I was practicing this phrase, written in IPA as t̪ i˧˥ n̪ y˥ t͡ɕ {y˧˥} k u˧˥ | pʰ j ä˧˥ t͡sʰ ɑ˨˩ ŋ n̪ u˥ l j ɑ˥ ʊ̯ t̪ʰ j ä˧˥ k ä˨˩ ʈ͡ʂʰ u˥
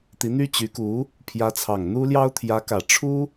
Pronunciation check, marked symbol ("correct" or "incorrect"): correct